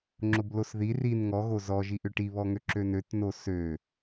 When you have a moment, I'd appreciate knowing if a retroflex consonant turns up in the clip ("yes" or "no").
yes